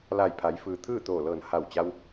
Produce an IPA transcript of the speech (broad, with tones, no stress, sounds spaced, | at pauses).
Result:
l a˧˩ j pʰ a˩˧ j f ɯː˩ t̪ʰ ɯː˥˨ t̪ oː˧˩ l ɤː˧˩ n h a˧˩ w t͡ɕ a˧ w